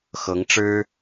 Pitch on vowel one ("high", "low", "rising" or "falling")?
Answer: rising